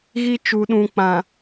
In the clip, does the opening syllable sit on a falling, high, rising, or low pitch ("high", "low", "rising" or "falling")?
high